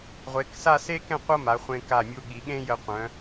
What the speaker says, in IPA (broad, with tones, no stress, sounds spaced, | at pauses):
ʁʷ e˩˧ k s a˥˧ s e˥ k ɛ̃˥˧ qʷ ɤ˥ m a˩˧ χʷ ẽ˧ k a˧˩ mʲ u˧ ɠ i˩˧ ɠ ẽ˥ j ə˧ qʷ œ̃˩˧